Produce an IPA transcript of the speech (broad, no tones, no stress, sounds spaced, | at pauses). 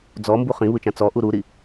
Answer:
d͡z ɔ m b u χ ĩ β ɯ t͡ʃ ã t͡s ɔ ʔ u ɾ u ɾ i